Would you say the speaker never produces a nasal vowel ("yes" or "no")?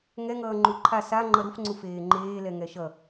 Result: yes